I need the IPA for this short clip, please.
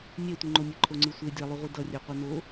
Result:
nʲ ɛ tʷ ɯ ŋ͡ǃ o nʲ e ǃʰ o ŋ͡ǀ ɯ sʷ e dʲ a lˠ u ʁʷ i d ʌ rʲ ɛ qʷ e n o

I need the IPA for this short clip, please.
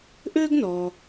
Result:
ʔ ø˥ ɡ n ɔ˩

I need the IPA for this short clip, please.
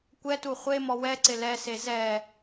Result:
kʷ ɛ t u χʷ e m ɔ w ɛ ǀ ɪ l ɛ s e z ɛ

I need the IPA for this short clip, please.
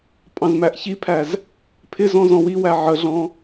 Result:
pʼ ɑ̃ z m æ ʔ ç i pʰ æ z | pʰ ɪ z ɔ̃ z ɔ̃ w i w æ ʕ ə ɮ ɔ̃

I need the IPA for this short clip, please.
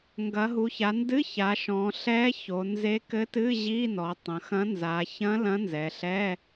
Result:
ŋ ɡ ɐ˩˧ ɦ u˩˧ ç a˩˧ n d ɨ˧˥˧ ç a˩˧ ʃ ɔ̃˩˧ ɬ ɛ˧˥ ç o˩˧ n z e˧˥ k ɘ˧˥ t ɨ˧˥˧ ʑ i˧˥˧ n ɔ˩˧ tˤ ɐ̃˩˧ x ɐ̃˧˥ n z a˩˧ ç ɐ̃˧˥ l ɐ̃˧˥ n z ɛ˩˧ ɬ ɛ˧˥˧

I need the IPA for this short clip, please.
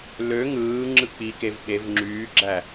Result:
l ø ŋ ɯː ŋ͡ǁ ɯ k͡p i k e v ɓ e v ŋ͡ǁ yː ɡ͡ǁ æ

